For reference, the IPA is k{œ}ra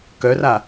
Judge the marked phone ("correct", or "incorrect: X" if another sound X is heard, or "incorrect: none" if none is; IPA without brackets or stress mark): correct